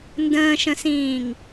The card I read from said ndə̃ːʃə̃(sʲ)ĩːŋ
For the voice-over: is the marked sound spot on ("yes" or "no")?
no